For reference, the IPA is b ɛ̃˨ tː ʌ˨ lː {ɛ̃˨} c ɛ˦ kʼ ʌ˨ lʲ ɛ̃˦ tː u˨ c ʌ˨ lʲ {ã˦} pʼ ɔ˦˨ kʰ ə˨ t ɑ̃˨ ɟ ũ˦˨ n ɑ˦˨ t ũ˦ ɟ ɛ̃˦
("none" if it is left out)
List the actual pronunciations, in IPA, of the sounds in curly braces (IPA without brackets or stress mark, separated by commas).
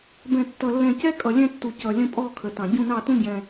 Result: ɛ̃˨, ə̃˦